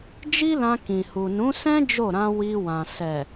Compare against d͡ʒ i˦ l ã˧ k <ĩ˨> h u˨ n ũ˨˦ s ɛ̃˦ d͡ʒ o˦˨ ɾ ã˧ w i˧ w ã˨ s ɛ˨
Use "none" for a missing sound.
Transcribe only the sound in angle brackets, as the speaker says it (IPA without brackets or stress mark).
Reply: ĩ˨